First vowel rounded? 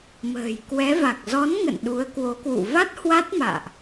no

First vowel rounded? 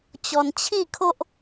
yes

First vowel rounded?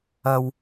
no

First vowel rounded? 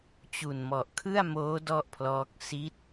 yes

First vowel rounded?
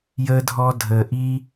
no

